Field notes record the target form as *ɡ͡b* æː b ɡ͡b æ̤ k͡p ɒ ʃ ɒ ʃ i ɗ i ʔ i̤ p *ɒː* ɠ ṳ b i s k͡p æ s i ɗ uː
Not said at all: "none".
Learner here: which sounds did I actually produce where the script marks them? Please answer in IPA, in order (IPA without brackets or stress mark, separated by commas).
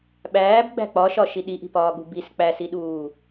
ɓ, ɒː